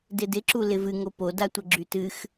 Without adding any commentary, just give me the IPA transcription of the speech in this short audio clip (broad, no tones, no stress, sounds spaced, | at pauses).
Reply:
d ɪ d ɪ ǁ u l ɪ v ɨ ŋ o p o d a tʷ ə ɡ͡ǁ y t ɨ x